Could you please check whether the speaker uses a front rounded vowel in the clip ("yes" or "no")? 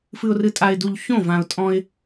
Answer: no